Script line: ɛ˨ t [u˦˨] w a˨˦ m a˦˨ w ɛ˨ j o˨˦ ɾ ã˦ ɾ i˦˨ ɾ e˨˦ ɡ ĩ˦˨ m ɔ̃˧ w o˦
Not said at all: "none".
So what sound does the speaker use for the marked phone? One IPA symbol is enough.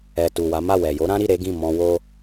u˨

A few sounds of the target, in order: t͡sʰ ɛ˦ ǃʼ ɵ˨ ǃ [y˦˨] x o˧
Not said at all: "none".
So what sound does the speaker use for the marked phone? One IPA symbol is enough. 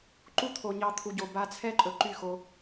y˦˨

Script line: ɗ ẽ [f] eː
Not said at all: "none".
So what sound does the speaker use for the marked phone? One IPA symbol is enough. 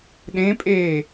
pʼ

